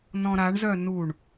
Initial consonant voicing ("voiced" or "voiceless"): voiced